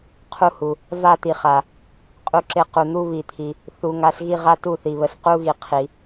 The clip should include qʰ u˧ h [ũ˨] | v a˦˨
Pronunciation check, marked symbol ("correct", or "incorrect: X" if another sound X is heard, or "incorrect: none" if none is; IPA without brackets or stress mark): incorrect: u˨